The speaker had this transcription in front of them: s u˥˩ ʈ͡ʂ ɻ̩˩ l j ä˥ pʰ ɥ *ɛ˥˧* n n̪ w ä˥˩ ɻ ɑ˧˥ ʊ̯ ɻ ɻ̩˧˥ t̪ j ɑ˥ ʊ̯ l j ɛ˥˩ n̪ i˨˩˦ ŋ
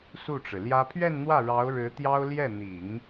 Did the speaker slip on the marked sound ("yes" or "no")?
no